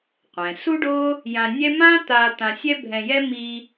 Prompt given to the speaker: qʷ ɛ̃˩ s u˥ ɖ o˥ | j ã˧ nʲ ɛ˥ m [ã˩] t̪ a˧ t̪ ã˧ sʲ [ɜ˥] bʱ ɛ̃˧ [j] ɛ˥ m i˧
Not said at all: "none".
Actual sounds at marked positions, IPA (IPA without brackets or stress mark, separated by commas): ã˥, ɛ˥, j